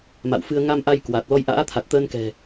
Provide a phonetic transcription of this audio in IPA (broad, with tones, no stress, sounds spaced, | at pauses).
m a̰˧˨ w f ɨ˧ ə̯ ŋ a˧ m ʔ a˧ j k w a˨˩ t̚ l ɔ˧ j ʔ a̰ː˧˥ t̪ʰ a˨˩ t̚ t̪ əː˧ n k ɛ̤˨˩